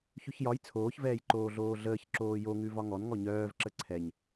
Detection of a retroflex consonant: absent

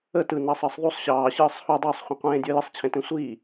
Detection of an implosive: absent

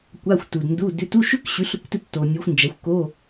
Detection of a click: absent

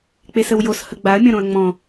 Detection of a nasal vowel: present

